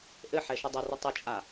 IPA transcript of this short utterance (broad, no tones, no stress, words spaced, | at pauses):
ʔɘħɛ ʃɘdˤɘrɨ tˤɘt͡ʃʼa